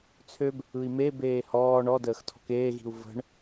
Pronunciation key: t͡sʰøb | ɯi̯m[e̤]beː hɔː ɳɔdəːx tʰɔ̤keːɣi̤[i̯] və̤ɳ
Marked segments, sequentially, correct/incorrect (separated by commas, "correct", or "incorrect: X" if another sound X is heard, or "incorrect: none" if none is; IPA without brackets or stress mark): incorrect: e, incorrect: u̯